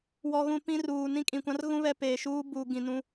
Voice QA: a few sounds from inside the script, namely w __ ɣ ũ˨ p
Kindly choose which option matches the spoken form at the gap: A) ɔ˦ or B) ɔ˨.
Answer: B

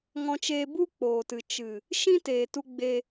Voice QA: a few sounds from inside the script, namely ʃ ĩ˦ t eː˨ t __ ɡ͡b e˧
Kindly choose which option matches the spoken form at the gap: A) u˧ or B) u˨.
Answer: A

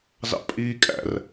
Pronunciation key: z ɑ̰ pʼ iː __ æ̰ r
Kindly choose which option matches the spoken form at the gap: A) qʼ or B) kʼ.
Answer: B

